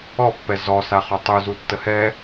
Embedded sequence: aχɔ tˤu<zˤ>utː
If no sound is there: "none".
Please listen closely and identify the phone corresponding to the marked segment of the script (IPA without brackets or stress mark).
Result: z